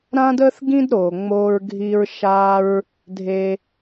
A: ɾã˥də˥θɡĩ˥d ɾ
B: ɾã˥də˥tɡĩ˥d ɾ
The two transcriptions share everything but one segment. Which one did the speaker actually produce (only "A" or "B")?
A